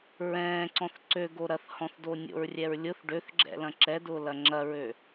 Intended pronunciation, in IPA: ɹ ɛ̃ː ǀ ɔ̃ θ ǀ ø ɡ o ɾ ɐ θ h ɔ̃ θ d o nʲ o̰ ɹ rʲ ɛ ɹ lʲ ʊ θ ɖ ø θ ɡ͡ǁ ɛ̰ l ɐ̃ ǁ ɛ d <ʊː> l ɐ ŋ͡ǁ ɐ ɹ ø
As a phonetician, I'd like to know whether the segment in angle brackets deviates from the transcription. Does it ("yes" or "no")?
no